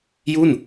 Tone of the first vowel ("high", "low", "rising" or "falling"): falling